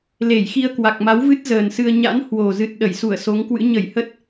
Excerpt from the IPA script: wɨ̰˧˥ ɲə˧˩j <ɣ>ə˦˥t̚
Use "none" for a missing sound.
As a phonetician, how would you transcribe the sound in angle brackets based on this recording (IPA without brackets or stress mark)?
h